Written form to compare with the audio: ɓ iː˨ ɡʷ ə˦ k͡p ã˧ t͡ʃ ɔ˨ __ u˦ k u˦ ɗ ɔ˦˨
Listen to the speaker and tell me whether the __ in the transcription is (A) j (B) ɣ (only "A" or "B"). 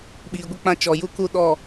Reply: A